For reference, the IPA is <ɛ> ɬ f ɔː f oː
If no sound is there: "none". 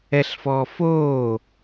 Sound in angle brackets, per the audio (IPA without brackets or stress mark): ɛ